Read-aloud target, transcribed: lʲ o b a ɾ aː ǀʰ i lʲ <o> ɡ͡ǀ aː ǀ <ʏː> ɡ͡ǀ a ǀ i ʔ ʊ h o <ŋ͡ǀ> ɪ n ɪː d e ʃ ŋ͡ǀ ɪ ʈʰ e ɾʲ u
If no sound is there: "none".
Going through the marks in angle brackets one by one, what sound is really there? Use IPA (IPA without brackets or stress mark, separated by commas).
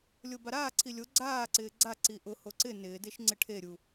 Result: o, ɪː, ǀ